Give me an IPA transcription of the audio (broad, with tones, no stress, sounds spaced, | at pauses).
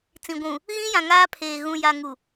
t͡s ĩ˨ ɡʷ ũ˨ | ɣ ĩ˦ j ã˨ ŋ aː˦ pʰ eː˨ ɣ ũ˨ j a˨ ŋ u˨